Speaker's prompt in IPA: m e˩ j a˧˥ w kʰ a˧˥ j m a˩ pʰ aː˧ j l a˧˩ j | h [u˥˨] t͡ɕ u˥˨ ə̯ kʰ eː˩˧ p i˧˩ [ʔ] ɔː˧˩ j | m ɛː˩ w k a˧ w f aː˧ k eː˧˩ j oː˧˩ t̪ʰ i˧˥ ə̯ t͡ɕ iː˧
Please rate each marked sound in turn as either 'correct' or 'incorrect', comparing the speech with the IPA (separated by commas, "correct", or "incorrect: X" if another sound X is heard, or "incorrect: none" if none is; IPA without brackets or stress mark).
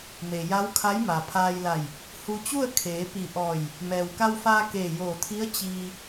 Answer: incorrect: u˧, correct